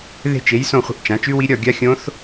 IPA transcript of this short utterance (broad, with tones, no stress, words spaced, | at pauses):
ðe̤˥˧t͡ʃe˨˥j sõ˥˧χʷə̤˥˧ʔt͡ʃã˨˥ t͡ʃʉ˦˥wi˦˥ ɾʲɒ˥˧ ɡʲa˦˥xʲõ˦˥θ